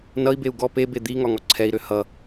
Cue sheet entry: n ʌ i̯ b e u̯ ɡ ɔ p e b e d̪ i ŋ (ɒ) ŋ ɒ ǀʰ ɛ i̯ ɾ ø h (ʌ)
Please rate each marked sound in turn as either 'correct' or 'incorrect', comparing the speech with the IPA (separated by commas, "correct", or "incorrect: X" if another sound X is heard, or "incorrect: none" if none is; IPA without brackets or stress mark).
correct, correct